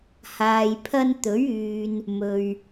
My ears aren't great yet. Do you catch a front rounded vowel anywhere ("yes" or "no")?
yes